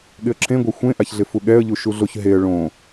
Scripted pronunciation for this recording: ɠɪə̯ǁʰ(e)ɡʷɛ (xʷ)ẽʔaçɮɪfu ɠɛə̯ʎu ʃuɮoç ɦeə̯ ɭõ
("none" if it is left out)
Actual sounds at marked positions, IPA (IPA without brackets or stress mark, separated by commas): ẽ, xʷ